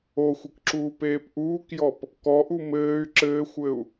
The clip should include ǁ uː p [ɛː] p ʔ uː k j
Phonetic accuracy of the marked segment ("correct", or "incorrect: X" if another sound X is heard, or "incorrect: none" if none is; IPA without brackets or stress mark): incorrect: eː